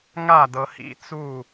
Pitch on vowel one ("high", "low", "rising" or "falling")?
falling